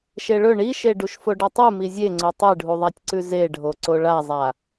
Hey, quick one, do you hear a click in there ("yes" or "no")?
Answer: yes